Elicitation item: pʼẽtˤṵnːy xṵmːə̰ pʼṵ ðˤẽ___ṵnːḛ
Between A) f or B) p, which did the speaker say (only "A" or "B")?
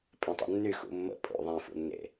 A